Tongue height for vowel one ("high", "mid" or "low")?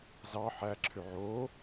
low